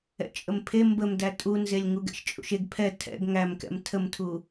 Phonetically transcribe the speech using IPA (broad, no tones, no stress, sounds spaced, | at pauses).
ɛ̰ t͡ʃʼ ə m pʰ e m b ə m d æ tʼ u n z e lʲ ŋ u ɡ ɛ̰ ʃ t͡ʃʼ ṵ ʃ e ɡ pʰ ɛ tʰ ɛ̰ ɡ ŋ æ m k ɛ̰ m tʰ ə m tʰ u